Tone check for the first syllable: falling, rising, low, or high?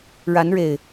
rising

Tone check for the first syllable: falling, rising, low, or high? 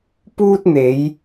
high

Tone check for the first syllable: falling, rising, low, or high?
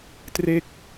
falling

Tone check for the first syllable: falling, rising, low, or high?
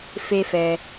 high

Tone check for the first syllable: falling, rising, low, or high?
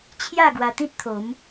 falling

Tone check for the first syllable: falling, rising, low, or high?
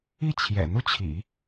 falling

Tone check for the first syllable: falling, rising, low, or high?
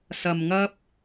low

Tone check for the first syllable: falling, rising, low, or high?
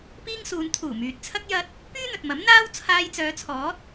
high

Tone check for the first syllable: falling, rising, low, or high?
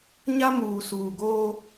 high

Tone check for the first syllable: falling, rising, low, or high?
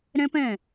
high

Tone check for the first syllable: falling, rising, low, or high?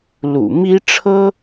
low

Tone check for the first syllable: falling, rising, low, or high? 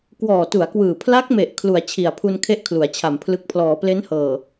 low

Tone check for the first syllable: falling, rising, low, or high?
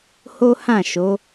high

